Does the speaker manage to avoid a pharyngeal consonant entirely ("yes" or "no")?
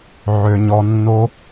no